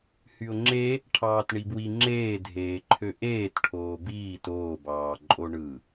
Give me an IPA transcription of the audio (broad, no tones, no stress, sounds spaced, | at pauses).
h y ʊ̯ ŋ͡ǁ e | ʈʰ ɑː t ɳ i b w i ŋ͡ǁ eː dʱ eː ǃʰ ø ʔ eː t ʈʰ oː b iː t oː b ɑː ǃʼ o ɳ ɯ